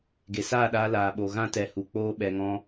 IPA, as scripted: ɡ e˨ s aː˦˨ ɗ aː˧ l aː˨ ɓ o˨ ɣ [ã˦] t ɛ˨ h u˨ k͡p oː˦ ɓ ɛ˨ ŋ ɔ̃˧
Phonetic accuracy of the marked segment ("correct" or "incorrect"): correct